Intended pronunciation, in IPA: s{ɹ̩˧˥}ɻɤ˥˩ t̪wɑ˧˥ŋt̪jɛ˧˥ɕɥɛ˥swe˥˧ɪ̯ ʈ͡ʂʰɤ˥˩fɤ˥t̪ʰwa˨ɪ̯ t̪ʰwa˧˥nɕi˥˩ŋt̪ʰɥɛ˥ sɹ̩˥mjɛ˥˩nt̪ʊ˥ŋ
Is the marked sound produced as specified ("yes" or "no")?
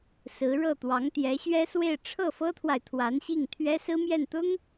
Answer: yes